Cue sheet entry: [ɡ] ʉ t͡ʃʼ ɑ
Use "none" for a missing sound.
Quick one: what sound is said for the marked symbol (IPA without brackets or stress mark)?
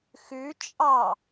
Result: x